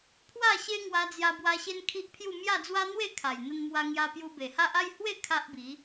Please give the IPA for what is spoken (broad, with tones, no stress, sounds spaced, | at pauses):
pʰ w a˥˧ ɕ e˦ ŋ w a˧ d͡z j a˧ b w a˧ ɕ e˦ n kʰ i˦ ʔ pʰ j u˥˧ m j a˥˧ d͡z w a˦ n̪ w e˥˧ kʰ a˨˩ j n̪ ə˧ n m w a˧ ŋ j a˧ p j u˧ b e˨˩ h a˦ ʔ a˥˧ j h w e˥˧ kʰ a˦ ʔ b i˨˦